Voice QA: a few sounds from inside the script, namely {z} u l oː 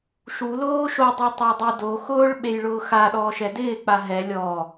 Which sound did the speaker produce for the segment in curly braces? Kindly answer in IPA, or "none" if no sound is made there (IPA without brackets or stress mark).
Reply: ʃ